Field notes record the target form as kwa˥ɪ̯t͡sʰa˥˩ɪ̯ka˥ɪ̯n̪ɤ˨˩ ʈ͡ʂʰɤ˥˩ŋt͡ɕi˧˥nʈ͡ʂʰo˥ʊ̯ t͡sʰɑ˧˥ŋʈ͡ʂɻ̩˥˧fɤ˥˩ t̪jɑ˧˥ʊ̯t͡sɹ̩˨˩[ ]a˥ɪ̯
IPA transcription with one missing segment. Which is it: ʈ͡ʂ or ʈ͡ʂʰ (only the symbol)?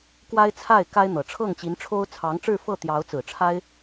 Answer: ʈ͡ʂʰ